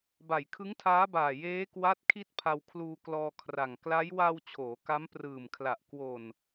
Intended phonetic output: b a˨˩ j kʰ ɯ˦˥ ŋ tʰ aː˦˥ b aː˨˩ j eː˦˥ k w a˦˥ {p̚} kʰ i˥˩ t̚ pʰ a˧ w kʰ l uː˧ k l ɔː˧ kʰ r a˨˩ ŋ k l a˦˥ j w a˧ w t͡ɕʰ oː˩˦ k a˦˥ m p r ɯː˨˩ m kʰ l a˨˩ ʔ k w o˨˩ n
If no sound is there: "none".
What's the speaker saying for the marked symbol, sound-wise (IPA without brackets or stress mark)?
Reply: t̚